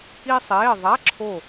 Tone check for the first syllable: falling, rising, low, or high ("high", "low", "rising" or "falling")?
high